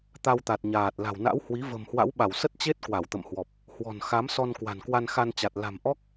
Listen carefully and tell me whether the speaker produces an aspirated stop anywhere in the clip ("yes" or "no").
no